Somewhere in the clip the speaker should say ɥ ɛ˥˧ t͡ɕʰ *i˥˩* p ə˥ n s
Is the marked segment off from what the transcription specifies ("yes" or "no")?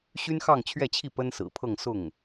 no